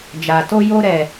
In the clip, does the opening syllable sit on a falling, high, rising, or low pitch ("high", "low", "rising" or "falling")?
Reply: low